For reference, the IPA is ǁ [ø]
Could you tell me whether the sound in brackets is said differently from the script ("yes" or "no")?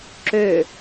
no